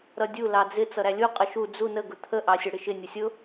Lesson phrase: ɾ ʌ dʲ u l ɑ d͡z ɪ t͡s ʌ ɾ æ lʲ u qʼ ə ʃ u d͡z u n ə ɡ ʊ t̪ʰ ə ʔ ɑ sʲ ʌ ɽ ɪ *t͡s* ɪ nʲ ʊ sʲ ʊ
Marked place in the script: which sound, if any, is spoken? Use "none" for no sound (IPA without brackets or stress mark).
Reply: ʃ